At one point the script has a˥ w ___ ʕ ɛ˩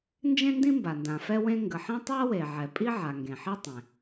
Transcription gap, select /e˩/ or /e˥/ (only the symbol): e˩